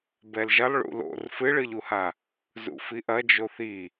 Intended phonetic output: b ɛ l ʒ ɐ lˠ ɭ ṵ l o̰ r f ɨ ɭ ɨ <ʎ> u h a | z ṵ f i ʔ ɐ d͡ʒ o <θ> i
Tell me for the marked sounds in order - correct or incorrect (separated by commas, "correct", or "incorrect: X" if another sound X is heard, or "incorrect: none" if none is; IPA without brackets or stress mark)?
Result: correct, correct